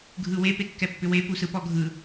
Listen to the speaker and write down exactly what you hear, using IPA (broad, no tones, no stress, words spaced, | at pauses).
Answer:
ɡʱɯwe pekːɛpːʏwe pusɯpɔɡʱɯ